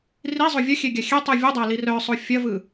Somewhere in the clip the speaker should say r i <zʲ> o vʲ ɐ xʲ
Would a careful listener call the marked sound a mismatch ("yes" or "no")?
yes